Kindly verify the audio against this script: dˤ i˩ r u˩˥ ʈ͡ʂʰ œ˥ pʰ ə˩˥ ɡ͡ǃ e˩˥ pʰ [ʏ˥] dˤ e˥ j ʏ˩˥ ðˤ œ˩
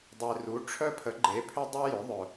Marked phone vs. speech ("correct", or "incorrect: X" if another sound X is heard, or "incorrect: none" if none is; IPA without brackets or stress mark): correct